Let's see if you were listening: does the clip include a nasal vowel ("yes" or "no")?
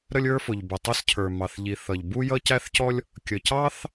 no